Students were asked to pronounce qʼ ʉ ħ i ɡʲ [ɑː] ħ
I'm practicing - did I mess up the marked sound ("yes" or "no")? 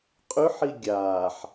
yes